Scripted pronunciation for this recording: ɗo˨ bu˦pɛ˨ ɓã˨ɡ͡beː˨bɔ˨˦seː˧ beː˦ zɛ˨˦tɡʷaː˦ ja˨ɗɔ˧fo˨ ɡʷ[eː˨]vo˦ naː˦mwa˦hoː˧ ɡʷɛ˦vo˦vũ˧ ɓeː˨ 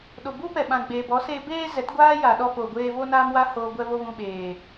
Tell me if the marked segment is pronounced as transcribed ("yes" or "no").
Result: no